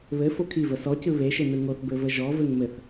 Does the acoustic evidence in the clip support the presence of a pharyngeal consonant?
no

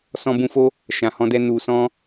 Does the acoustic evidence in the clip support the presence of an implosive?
no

